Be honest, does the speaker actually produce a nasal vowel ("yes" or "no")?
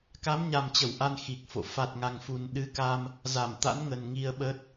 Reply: no